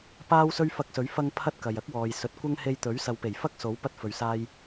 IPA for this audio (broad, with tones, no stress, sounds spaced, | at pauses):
p aː˥ w s ɵ˥ ɥ f ɐ˧ k̚ s ɵ˨˥ ɥ f ɐ˧ ŋ pʰ ɐ˥ t̚ k ɐ˨ j ɐ˥ k̚ w ɔː˨ j s ɵ˨˥ t̚ kʷ ɐ˥ ŋ h e˧ j t̪ ɵ˨˥ ɥ s ɐ˨ w p e˨˩ j f ɐ˥ k̚ s o˨˥ w p ɐ˧ t̚ f ɵ˨ ɥ s aː˧ j